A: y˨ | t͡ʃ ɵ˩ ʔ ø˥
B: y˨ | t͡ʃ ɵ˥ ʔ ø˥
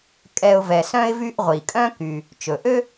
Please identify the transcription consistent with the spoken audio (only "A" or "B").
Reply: A